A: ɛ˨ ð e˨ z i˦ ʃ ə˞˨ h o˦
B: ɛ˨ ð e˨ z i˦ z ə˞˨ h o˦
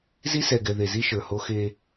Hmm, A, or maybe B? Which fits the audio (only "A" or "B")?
A